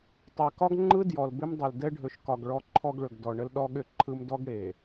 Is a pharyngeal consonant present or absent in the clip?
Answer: absent